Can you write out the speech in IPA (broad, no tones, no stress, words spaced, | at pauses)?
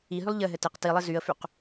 iɦylˠ ʎɘɦɘ tɪq tilˠɘ zyə̯fyq